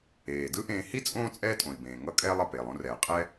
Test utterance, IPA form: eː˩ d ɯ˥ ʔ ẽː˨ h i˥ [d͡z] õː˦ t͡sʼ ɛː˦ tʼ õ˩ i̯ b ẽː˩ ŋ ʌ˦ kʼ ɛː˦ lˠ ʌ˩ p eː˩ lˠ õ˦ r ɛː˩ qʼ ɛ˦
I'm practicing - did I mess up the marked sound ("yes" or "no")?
yes